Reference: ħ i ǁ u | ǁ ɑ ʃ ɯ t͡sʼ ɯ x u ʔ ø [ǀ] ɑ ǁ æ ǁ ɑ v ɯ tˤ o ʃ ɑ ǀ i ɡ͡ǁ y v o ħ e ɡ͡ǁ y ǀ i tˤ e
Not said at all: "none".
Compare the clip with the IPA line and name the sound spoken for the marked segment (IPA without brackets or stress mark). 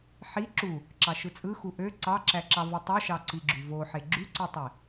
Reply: ǀ